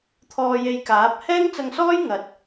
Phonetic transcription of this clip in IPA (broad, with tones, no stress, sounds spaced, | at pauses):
t̪ʰ ɔː˧ j e˧ j k aː˨˥ p̚ h ɛː˥ ŋ t͡s ɐ˧ ŋ s ɔː˥ j ŋ ɐ˨˥ t̚